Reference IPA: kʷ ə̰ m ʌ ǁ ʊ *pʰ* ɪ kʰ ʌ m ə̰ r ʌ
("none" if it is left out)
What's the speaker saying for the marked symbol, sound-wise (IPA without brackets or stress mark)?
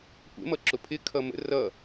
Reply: pʰ